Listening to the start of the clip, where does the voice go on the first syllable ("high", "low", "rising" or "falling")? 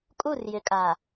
falling